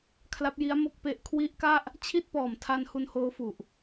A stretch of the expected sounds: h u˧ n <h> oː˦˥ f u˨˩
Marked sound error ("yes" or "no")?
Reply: no